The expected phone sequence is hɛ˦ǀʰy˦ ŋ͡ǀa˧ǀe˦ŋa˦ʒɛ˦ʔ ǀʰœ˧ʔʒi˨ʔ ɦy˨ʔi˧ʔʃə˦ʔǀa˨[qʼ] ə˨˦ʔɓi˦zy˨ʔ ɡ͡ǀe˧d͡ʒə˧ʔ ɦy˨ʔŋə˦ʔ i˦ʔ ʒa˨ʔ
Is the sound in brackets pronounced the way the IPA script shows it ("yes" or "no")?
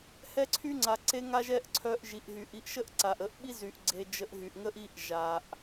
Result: no